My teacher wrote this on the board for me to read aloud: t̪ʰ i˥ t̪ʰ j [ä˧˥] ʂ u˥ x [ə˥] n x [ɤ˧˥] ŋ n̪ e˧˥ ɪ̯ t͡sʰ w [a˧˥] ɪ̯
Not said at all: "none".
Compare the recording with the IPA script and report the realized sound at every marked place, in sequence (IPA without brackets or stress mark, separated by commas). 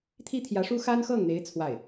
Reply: ä˧˥, a˥, ɤ˥˩, a˥˩